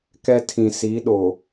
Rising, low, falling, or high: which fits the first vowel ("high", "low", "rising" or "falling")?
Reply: high